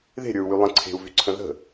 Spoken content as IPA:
ð e̤ ɾʲ ə˞ u̯ w y lˠ ə̃ ǀʰ e̤ u̯ v y ǀʰ ə̃ ð ə̤

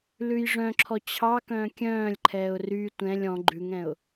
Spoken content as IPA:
l ʉ j ʐ œ̃ ǁʰ ɔ t͡ɕʰ ɑ k œ̃ː kʲ œ̃ː lʲ ǃʰ ɛː ʊ̯ r y tʷ ɛ̃ lʲ ɔ̃ ɡ͡ǃ ʉ ŋ ɛ̃ ʊ̯

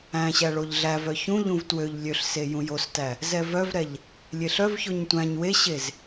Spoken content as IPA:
æ̃ ɕ æ ɭ o ʎ ɮ æ v œ ç ũ ʎ ũ v t w ø ʎ lʲ ø ɬ s e j ũ j o s t æ | z ɛ v œ v ɾ ɛ ʎ | lʲ e ɬ œ v ç o ɲ tʷ æ̃ ɲ w e ɕ e z

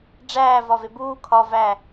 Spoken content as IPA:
ɖ͡ʐ æː v ɒ v e b uː kʰ ɒ v æ

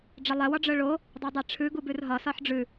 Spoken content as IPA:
ɖ͡ʐ ə lˠ ɛ w ɒ ɖ͡ʐ œ ɭ o | dˤ ɛ dˤ ɛ ʈ͡ʂʰ ʉ ɡ u b ʉ r ɦ ɒ s ɒ ħ ɖ͡ʐ ʉ

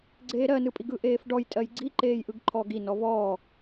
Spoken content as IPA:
ɡ͡ǀ eː ɾ ɜ n ɯ pʼ i ɡ ɯ ʔ eː f ɖ ɔ j tʼ ɜ j ɡ͡ǀ i ǃ eː j ʔ ɯ ɡ ǃʰ ɔː ɡ i n ɔ v ɔː

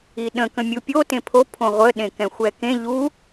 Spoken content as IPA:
i ɗ ə̃ k ə̃ mʲ u pʲ o t ẽ pʰ o pʰ õ ʁʷ ə ɗ ẽ k ɛ̃ xʷ ɛ k ẽ ʎ u

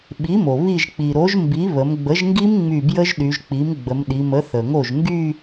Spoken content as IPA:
ɓ i˩˥ m o˩ β i˧˩ ʒ k͡p i˩ ɾ o˩˥ ʒ m b i˩˥ β ə˩˧ m ɡ͡b ə˩˥ ʒ ŋ ɡ i˦˥ m ŋ͡m y˧˩ b j ə˦˥ ʒ ɗ y˩˧ ʒ k͡p i˩˥ m ɡ͡b ə˩˧ m ɗ i˩˧ m ə˩˥ θ ə˩ ŋ o˧˩ ʒ ŋ ɡ y˥˧

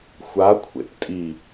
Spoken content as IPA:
xʷ a kʷʰ ḛ p tʼ i

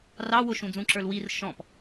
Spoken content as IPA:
r ɑ w ʊ ʃ ũ d͡z ũ ǁ ə˞ l w i r ʃ ɔ̃ p

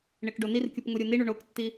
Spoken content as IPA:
ɳ e k ɖ o n i r kʲ u p ŋ u ɾʲ u n i ɳ u ɳ o k tː i

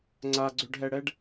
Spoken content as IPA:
ŋ͡ǀ a ɡ͡ǀ ø ɖ ɦ ɛ ɽ ɛ ɖ

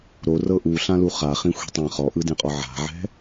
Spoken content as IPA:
ɾ o r ɤ ʔ u ɬ ã l u χ a χ ĩ xʷ e̤ tˤ ã χ ɔ ʔ ɯ d ẽ qʼ ɔ ʕ a̤ ʕ ɛ̤

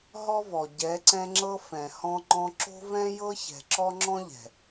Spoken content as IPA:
ɦ ɔ˦ v ɔ˨ ɟ ɛ˨˦ ǀ ɛ̃˧ ŋ͡ǁ ɤ˧ f ɛ̃˨ h ɔ̃˧ ŋ͡ǃ ɔ̃˧ ǁ o̤˦ v ɛ̃˦ j ɤ˦ ç ɛ̤˨ ǁ ɔ˦ ŋ͡ǁ ɔ̃˦ ʎ ɛ̤˨

